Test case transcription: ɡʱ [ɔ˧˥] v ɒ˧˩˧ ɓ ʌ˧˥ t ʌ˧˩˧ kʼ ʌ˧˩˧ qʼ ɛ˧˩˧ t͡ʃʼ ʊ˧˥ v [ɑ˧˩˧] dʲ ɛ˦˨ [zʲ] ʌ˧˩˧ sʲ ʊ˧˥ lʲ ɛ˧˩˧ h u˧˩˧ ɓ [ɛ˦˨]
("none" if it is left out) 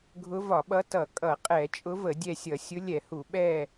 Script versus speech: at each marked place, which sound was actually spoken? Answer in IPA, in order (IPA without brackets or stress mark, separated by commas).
ʊ˧˥, ə˧˩˧, sʲ, ɛ˦˨